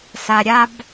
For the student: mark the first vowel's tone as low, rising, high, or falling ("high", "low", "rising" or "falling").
low